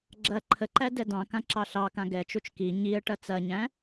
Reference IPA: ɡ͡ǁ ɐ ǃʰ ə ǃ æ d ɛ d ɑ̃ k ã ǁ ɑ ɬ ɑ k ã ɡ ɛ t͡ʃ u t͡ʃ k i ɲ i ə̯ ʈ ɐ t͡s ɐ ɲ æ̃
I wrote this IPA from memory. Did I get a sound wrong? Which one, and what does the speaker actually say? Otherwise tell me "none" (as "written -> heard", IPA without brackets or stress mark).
none